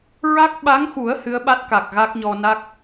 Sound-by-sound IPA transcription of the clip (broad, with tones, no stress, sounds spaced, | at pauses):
ɹ a˦˥ k̚ ɓ a˧˥ ŋ x u˨˩˦ ə̯ h ɨ˧˥ ə̯ ɓ a˦˥ t̚ k a˨˩ k̚ ɣ a˦˥ k̚ ɲ ɔ˧ n a˦˥ k̚